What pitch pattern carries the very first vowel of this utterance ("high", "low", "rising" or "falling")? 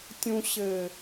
low